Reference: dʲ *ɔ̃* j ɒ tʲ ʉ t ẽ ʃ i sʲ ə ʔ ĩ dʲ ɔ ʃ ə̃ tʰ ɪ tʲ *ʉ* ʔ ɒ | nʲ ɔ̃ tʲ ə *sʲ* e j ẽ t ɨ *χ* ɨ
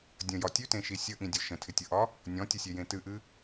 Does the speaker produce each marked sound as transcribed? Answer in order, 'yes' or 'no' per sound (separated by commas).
no, no, yes, no